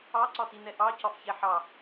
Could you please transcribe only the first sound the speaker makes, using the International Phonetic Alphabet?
ɑ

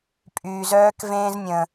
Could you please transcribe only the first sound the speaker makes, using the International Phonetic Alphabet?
pʼ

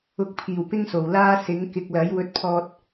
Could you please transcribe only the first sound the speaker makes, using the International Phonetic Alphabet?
ʊ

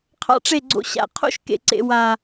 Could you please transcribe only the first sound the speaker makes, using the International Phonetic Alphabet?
qʰ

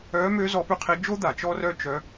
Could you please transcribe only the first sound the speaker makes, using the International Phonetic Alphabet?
œː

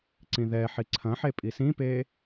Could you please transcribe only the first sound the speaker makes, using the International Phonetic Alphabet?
ǀ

